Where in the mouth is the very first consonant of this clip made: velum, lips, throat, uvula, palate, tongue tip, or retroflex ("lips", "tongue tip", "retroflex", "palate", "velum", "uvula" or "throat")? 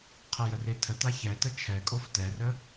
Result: uvula